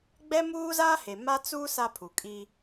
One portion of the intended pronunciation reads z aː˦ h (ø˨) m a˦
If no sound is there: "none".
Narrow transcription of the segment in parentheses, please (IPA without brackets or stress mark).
e˨